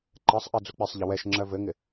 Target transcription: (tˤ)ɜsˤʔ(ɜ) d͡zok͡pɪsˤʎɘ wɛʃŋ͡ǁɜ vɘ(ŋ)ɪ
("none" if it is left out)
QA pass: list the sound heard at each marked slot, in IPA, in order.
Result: ǃ, ɜ, ŋ

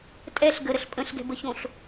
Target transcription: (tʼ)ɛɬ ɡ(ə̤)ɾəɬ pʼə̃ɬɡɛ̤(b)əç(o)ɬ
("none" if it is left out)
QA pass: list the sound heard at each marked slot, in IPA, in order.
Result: tʼ, ə, b, õ

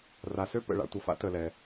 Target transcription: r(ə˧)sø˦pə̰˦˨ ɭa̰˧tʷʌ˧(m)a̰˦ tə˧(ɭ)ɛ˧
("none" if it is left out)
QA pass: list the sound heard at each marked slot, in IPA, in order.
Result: a˧, f, l

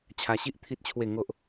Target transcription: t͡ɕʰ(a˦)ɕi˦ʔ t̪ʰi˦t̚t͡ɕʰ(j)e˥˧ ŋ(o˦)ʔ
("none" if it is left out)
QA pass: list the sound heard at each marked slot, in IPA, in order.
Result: a˧, w, o˦

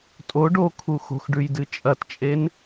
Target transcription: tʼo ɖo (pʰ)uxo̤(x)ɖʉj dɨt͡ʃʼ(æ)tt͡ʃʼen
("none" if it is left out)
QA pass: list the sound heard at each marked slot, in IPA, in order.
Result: kʰ, x, ɐ

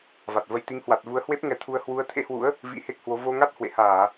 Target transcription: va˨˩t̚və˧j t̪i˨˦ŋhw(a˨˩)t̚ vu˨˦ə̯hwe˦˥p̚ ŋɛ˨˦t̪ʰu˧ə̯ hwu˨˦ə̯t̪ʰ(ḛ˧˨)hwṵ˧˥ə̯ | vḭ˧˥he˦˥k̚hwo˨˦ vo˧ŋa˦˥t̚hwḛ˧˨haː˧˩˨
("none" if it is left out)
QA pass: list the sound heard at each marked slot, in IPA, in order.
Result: a˨˩, ḛ˧˥

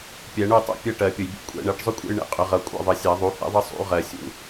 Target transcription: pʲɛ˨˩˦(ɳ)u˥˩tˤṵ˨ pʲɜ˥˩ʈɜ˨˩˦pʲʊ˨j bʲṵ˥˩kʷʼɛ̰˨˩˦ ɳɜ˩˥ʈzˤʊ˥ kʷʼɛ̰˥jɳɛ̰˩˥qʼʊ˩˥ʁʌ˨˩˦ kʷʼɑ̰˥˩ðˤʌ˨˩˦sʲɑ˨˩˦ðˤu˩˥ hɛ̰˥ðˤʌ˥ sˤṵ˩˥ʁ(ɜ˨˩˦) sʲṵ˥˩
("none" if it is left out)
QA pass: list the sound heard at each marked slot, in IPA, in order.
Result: ɳ, ɜ˨˩˦

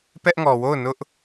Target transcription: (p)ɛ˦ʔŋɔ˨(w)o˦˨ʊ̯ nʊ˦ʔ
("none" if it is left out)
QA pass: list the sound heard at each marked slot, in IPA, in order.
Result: p, w

